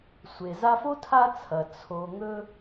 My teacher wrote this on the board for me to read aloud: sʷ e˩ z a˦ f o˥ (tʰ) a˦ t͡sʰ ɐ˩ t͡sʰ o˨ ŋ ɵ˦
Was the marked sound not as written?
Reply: no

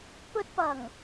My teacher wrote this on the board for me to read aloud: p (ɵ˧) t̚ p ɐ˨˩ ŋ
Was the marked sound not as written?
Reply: no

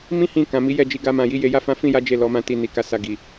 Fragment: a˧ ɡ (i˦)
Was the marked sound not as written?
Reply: yes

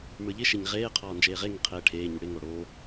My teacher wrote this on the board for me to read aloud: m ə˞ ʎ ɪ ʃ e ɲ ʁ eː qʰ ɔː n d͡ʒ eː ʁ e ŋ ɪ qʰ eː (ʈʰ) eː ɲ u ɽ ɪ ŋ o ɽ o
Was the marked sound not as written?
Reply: no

